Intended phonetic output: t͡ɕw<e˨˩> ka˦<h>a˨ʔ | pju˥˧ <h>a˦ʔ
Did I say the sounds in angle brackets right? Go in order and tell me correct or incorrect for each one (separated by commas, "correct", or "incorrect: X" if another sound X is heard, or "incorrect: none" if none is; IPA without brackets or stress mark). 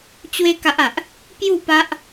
incorrect: e˦, incorrect: ʔ, incorrect: p